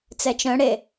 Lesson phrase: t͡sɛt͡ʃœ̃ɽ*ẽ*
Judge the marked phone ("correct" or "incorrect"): incorrect